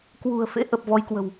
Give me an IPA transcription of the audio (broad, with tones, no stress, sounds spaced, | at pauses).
k w ṳ˨˩ ə̯ f ḛ˧˥ ʔ ə˨˩ p̚ v ɔ˨˦ j k w ə̤˨˩ w